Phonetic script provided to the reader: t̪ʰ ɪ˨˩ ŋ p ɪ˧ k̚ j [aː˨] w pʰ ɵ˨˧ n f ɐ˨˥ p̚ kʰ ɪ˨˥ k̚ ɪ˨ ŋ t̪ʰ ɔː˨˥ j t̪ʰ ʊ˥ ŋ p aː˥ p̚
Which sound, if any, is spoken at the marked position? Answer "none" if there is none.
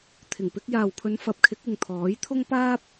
aː˨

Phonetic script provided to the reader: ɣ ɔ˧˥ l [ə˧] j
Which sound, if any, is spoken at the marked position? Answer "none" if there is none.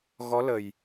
ə˨˩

